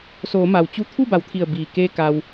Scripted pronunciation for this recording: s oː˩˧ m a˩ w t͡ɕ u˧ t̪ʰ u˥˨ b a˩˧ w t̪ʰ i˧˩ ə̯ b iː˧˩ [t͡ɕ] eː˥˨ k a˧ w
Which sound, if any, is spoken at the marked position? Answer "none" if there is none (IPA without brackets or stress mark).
k